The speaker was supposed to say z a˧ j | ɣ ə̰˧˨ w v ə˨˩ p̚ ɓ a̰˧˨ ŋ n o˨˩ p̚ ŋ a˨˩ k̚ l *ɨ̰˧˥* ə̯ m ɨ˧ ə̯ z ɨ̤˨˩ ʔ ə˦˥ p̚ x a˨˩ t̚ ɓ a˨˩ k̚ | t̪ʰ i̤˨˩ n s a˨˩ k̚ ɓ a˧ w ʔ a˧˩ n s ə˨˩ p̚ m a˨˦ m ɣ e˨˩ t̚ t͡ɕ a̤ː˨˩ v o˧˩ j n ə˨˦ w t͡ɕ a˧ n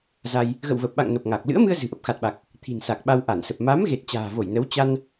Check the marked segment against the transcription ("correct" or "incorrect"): correct